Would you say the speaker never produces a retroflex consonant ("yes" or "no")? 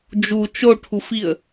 no